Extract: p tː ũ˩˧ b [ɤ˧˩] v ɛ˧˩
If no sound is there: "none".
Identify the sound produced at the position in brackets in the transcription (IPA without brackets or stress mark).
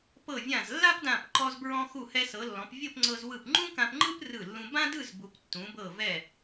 ɤ˧˩